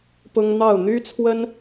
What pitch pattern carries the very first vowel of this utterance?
high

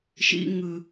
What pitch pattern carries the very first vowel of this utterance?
high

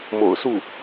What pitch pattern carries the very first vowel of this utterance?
low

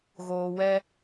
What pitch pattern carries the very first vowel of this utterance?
low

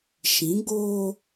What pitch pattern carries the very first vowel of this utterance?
rising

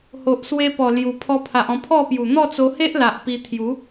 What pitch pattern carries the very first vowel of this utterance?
low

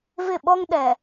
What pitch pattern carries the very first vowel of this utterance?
falling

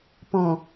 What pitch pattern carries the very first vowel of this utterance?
low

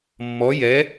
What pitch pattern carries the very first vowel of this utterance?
rising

